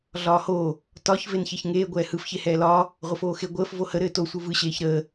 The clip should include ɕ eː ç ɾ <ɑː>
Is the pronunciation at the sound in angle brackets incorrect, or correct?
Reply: incorrect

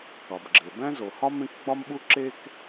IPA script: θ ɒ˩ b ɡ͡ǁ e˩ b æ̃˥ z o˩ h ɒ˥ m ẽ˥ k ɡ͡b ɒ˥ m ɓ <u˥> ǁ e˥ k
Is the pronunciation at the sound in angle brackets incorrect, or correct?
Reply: correct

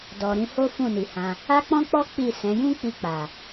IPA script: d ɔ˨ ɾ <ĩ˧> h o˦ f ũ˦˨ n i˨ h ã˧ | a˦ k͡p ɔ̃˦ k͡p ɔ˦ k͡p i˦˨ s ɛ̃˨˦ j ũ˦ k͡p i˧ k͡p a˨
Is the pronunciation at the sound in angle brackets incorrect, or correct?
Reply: correct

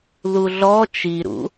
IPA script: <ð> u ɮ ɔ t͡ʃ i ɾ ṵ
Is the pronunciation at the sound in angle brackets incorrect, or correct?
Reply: correct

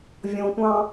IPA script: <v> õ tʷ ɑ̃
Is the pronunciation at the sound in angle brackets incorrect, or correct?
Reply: incorrect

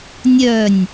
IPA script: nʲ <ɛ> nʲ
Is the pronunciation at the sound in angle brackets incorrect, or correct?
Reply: incorrect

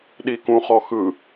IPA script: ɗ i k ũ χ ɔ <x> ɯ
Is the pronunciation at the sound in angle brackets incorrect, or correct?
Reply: correct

